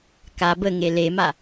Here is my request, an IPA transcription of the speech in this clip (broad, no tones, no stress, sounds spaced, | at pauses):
k a b ə ŋ e l e m a